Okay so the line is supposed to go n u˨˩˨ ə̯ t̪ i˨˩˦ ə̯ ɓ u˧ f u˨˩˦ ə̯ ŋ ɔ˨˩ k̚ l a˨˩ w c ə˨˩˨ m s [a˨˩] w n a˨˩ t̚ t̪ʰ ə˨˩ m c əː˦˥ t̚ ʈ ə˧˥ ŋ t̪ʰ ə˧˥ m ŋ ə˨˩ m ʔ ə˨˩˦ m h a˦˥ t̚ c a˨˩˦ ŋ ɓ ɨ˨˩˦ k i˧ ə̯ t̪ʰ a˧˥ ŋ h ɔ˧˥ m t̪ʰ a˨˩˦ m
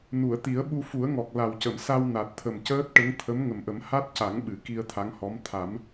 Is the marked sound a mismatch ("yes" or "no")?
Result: yes